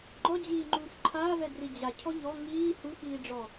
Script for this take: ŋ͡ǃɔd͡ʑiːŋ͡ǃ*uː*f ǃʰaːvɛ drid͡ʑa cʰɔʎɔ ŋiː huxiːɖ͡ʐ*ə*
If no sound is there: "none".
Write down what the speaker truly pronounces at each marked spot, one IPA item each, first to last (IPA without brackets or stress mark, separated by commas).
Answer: uː, ɔ